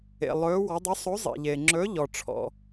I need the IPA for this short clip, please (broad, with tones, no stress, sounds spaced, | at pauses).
ḛ˩ lˠ ɵː˩˧ w ɔ˩˧ dˤ ɵ˨˥ sˤ o˨˥ zˤ ḛ˩ ʎ eː˩ ŋ͡ǁ ɵː˨˥ ʎ ɔ˩ ʈ͡ʂʰ ɔ̰˩